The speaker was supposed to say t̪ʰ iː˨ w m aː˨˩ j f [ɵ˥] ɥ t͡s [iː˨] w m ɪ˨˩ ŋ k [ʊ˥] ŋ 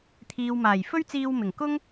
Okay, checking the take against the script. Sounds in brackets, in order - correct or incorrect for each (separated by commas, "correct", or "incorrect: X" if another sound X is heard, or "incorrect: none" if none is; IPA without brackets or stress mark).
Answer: correct, incorrect: iː˧, correct